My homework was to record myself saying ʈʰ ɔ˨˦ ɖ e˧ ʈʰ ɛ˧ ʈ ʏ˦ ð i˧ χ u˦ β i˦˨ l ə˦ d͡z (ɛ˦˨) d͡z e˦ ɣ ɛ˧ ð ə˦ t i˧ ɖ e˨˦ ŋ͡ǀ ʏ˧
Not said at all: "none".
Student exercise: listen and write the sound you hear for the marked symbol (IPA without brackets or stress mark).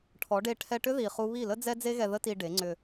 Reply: ɛ˦